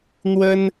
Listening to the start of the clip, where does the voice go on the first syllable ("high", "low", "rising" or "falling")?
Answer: high